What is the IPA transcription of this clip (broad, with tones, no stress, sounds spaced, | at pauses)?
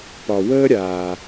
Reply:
p ɒ˩ w əː˧ ɾʲ aː˩